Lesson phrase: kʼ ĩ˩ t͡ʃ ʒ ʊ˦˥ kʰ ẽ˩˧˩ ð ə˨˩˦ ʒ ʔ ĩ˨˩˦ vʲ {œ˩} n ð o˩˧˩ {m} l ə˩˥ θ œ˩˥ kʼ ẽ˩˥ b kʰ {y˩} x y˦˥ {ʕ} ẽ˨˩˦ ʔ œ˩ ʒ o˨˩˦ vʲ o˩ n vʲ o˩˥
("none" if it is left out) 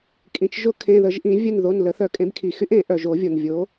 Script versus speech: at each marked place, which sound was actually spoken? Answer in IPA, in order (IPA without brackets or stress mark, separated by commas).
œ˦˨, n, i˩, ʔ